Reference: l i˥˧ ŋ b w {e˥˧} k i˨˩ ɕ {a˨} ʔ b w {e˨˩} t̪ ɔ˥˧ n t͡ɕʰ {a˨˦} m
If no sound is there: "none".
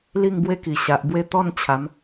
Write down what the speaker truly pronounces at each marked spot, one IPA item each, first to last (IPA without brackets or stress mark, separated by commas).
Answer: e˥˧, a˨, e˥˧, a˨˦